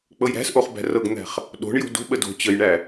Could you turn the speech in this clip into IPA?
k͡pɤjɾæ̤sʔoχ bæ̤rɤɡn̪æ̤χ | ɗo̤ɳjo̤ do̤ɓə do̤ t͡ɕəjɳæ

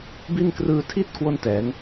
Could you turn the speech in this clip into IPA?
bi˥˩n krɯː˧tʰi˥˩t̚ kwo˥˩ntɛː˩˦ŋ

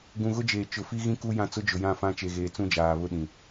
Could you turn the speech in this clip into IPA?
ɡũ˨ɣʊ˦d͡ʒeː˨ t͡ʃʊ˨fi˦ɣĩ˦ ku˦ jã˦t͡sʊ˦ d͡ʒʊ˨jã˦˨fã˦ t͡ʃe˨ɣeː˨ t͡sũ˦d͡ʒaː˨ βʊ˦ɗĩ˨

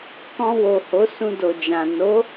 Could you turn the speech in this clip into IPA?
kɔ̃˧ wo˨ho˨˦ sũ˧do˨ d͡ʒã˨ no˨˦

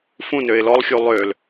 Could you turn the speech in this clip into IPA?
fũ nøɪ̯lɔlˠxʲu lˠøl

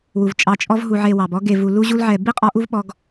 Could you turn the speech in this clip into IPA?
wu˩vt͡ʃʼɑ˨ t͡ʃʼɔ˦vɦu˨ ʕe˨wɑ˩bɔ˦ɡe˨ vu˨lu˦ʑu˦l ʕɛ˨ bi˥ qʼɔ˦ʔu˥v ɓɔ˦ɡ

